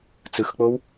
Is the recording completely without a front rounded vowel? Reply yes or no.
yes